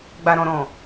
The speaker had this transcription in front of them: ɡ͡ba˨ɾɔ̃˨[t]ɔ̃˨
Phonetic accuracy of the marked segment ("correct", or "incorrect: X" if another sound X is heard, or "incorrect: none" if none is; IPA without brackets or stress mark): incorrect: ɾ